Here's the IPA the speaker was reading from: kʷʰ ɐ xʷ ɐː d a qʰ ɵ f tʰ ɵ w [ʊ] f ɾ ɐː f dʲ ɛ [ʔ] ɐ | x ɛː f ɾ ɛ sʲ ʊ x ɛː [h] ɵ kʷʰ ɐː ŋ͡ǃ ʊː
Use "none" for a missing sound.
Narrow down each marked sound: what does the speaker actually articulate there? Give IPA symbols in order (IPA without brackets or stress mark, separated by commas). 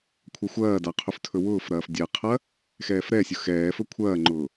ʊː, qʰ, f